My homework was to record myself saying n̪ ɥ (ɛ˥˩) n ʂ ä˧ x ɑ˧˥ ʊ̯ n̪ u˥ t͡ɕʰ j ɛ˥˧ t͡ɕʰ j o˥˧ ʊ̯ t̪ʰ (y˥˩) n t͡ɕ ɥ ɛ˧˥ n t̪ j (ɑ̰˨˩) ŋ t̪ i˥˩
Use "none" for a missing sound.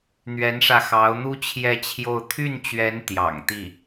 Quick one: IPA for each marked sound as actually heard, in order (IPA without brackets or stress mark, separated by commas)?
ɛ˧˥, y˥˩, ɑ̰˨˩